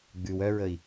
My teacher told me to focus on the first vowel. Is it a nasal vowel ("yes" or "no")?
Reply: no